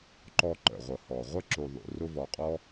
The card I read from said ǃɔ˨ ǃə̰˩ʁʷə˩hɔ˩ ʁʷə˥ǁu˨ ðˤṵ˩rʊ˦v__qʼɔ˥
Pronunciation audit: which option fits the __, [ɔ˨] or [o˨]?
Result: ɔ˨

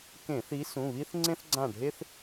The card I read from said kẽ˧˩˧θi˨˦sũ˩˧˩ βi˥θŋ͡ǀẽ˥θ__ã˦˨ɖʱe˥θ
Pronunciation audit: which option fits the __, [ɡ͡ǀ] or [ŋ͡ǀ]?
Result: ɡ͡ǀ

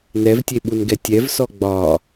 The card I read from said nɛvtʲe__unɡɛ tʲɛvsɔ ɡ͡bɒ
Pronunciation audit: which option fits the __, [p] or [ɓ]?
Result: ɓ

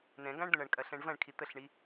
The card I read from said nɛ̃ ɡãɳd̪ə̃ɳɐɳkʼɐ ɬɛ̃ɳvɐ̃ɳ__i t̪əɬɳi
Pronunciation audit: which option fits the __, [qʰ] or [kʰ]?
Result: kʰ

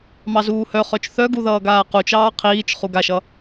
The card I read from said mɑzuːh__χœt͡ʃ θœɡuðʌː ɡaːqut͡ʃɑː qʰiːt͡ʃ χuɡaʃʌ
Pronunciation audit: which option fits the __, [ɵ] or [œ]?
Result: œ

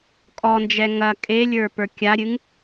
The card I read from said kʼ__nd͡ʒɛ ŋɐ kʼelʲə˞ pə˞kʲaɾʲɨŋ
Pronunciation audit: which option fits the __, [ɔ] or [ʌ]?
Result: ɔ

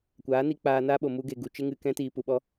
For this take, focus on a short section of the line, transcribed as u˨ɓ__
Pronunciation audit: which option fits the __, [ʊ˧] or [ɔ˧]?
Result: ɔ˧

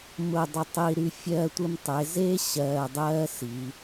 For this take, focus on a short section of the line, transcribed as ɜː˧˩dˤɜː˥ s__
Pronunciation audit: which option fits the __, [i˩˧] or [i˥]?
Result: i˩˧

